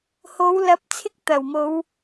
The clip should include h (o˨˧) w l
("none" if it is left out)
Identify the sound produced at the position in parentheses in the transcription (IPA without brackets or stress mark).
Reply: o˨˧